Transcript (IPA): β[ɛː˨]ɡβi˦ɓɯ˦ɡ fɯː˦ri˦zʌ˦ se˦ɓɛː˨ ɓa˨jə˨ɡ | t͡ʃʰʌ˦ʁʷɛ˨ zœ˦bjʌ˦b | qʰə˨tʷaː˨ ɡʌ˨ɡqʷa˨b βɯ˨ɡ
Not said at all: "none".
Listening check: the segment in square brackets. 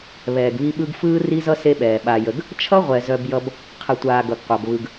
ɛː˨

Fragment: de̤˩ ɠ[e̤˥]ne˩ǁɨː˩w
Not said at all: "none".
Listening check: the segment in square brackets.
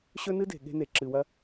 e̤˥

